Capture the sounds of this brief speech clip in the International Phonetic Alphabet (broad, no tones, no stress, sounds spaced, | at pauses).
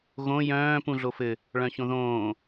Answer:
ɣ õ j œ̃ː p ũ ɮ o f ɘ | ɭ œ̃ ç õ ð õː